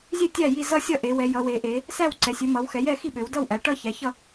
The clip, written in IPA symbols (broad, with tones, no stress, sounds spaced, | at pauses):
zʲ ø˥˨ tʲ æ˥˨ j i˥˨ z ʌ˥˨ sʲ ʌ˥˨ ʔ e˩˧ w ɛ˩˧ j ʌ˩˧ w e˩˧ ʔ e˩˧ | s æ˥˨ w ǀ ɛ˩˧ sʲ ø˩˧ m ʌ˩˧ w x ɛ˩˧ j ɛ˥˨ x i˥˨ ɓ ø˩˧ w d ʌ˥˨ w ʔ æ˩˧ ʈ ʌ˥˨ ç æ˩˧ ç ʌ˥˨